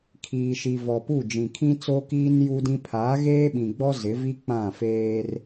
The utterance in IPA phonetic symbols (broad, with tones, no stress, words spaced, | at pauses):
kʰiː˨ʃi˨ vɔ˨pu˦˨ d͡ʒĩ˨kʰĩ˦t͡so˦kiː˦n ju˦dĩ˦ pʰaː˨˦ɣeː˦ɓĩ˨ɡ͡bɔ˦ zɪ˨˦vi˦ k͡pã˦˨feː˦r